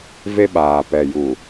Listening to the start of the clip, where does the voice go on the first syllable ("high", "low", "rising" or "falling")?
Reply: high